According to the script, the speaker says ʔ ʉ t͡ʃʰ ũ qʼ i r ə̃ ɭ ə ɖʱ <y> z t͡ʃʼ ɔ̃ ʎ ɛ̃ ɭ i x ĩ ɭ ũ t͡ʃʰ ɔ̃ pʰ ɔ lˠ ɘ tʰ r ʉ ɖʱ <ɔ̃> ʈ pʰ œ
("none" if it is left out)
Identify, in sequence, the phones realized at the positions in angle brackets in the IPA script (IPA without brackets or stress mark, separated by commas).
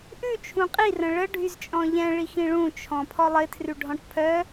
y, ɔ̃